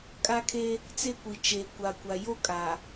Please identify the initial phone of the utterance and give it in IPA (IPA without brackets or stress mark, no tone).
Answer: kʼ